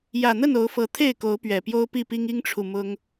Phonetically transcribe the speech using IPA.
j ä˨˩ n̪ ə˥˨ n o˨˦ ʊ̯ f ɤ˨˦ t̪ʰ e˥˨ ɪ̯ k o˨˦ ʊ̯ p ɥ ɛ˨˩ p j o˦ ʊ̯ p i˥˨ p i˦ ŋ i˦ ŋ ʈ͡ʂʰ u˨ m ʊ˦ ŋ

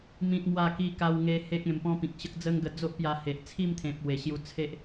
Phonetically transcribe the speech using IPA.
m ĩ˦ t̚ m w a˥˧ k i˦ k a˧ w ŋ e˧ h e˦ k̚ ẽ˧ m p ɔ̃˦ p ĩ˨ k̚ ɕ ə˦ k̚ d͡z ə˦ ŋ ɡ ə˧ d͡z o˦ ʔ p j a˧ h e˨ ʔ t͡sʰ i˥˧ m t̪ʰ ẽ˨ p̚ w e˨˩ ɕ j u˧ t͡sʰ e˦ ʔ

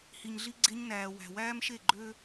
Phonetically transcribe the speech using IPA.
h i˩ ɲ ɮ i˧ ɡ͡ǀ e˧ ɲ n æː˩ w æ̤˩ w æː˥ m ʃ e˥˩ ɡ͡ǃ ø˥

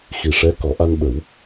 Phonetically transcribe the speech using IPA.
x i˨˩ ʂ ɛ˧˥ k ɔ˨˩˦ ʔ a˧ n ɓ ə˨˩˦ w

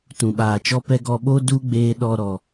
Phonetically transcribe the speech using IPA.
t ũ˨ ɓ aː˨ t͡ʃ ɔ˧ p ɛ˧ ɡ ɔ˧ ɓ o˦ d u˦ ɡ͡b eː˧ ɗ ɔ˧ ɾ ɔ˨

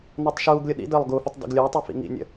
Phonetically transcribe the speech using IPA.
n ɔ tˤ ʃ uː ɡ lʲ ʊ ɗ ḭ d əː lˠ ɡ u f ə tˤ d ə̰ ɡ lʲ ʊː tˤ ɛ f ḭ ŋ ḭ nʲ ə̰

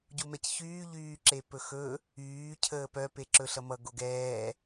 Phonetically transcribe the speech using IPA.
ɟ u m ɛ c ç yː ʎ yː ǁ e p ɵ x ɵ | yː cʰ əː p œ p e ǁ ɵ ɬ ʌ m ʌ ɡ o ɡ ɛː

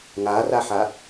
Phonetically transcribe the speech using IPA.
ŋ a r a ħ a

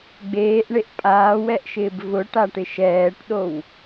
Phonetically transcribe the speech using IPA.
ɡ͡b eː ʔ ɳ e ʔ pʼ aː w ɛ ʔ ʃ ɪː b v ʊ ʈ a ʈ ɪ ʃ ɛː ʈ ɗ o w

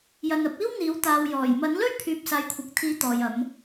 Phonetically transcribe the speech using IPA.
j ɐ˨ n ɐ˨˥ p̚ iː˥ w n̪ iː˨˥ w t̪ aː˨ w j ɔː˨˩ j m ɐ˨˥ n l ɵ˥ ɥ pʰ yː˨ p̚ s aː˨˧ j kʷʰ ɐ˨ k̚ t̪ʰ iː˨˥ t̪ ɔː˨ j ɐ˨˧ m

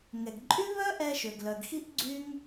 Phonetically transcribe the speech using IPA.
ŋ ɛ˩ ɡ ǃʼ y˥ β œ˥ ʔ ɛ˧ ʃ ø˩ ɡ l œ˩ ɡ x i˥ ʔ ɡ͡ǀ y˥ ŋ

